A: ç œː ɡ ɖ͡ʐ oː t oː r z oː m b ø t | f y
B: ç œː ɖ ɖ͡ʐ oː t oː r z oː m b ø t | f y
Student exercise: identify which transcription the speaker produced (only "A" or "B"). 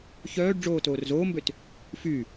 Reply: B